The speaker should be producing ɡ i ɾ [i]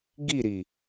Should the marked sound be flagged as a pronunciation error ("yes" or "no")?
no